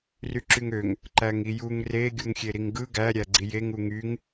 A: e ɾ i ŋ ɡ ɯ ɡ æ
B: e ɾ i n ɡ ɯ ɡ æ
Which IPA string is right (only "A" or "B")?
A